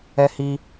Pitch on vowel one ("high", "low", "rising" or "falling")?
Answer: high